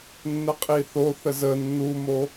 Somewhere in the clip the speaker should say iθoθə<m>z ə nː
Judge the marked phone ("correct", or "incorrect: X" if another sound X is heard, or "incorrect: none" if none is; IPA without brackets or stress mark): incorrect: none